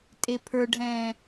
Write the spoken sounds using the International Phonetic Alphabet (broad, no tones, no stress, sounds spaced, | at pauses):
tʼ e pʰ ə˞ ɖʱ ɛ̃ː